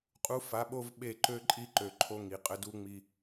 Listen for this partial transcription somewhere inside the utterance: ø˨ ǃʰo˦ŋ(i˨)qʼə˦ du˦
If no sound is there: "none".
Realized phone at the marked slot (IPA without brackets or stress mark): i˨